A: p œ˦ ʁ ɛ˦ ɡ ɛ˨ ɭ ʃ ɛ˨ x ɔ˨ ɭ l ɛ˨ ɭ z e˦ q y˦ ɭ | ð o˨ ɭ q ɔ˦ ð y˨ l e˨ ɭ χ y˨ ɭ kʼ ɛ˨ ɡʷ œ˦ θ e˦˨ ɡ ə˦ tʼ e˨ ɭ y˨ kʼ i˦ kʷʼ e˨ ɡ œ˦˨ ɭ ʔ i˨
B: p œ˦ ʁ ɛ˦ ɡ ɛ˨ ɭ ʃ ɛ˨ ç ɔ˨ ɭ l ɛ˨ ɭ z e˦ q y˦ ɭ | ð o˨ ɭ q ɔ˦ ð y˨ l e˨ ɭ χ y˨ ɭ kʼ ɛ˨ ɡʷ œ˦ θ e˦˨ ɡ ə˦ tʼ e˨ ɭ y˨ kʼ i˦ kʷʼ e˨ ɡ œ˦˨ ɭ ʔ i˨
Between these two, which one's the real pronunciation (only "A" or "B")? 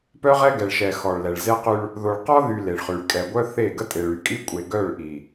A